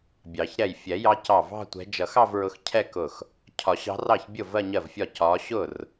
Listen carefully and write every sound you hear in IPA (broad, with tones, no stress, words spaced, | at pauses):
bʲɑ˨˩˦ç ɾɛ˧˩jfʲɛ˨˩˦jɑ˨˦cɑ˧˩ vɑ̤˥˧tʷɛ̤˨˦ d͡ʒʌ˨˩˦xɑ˥˧vɹʊ˨˦x cʰɛ˥˧kʊ˧˩x | cʰɒ˨˩˦ɕɑ̤˨˦ rɑ˥˩çbʲʊ˥˩ vɜ˥˧ɲɜ˥˩vfʲɒ˥˩ cɒ˨˦ɕʊ˥˩r